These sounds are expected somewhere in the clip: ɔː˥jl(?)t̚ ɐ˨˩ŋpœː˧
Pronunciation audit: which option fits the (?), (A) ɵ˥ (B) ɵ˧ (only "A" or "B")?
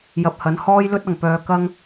A